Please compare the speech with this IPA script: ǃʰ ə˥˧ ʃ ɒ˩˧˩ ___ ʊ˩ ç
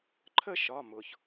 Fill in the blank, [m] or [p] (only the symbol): m